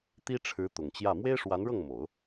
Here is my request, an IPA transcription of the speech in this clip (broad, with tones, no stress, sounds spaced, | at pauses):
t̪ i˥ ʈ͡ʂʰ ɻ̩˧˥ t̪ ʊ˨˩ ŋ t͡ɕ j ä˥˩ m w e˥ ɪ̯ ʂ w a˧˥ n ɻ ɤ˥˩ ŋ m o˨˩˦ ʊ̯